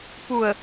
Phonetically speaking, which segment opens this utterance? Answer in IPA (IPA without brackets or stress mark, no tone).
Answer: p